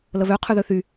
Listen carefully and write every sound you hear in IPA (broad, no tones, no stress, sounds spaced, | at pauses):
l ə β ø qʰ y ð ø θ y